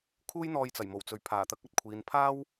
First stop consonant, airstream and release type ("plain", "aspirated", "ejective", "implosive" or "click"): aspirated